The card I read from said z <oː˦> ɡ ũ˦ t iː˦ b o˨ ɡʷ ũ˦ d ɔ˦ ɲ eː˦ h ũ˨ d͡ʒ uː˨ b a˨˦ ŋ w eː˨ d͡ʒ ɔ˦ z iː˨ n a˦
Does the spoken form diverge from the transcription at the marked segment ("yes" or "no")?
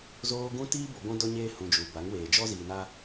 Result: no